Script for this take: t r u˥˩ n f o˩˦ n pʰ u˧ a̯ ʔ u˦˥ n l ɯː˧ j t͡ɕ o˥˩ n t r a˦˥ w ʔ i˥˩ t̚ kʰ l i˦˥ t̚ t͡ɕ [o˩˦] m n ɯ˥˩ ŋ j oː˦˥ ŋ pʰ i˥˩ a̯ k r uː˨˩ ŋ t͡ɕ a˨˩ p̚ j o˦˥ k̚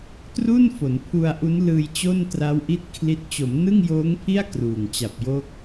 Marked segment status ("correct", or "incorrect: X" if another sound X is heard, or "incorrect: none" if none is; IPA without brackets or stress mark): correct